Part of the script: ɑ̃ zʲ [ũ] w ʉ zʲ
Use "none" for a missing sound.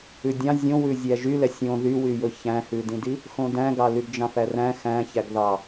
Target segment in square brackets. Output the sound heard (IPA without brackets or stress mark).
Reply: õ